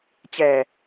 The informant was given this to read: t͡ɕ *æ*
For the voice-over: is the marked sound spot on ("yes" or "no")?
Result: yes